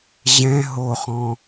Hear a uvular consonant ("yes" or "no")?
yes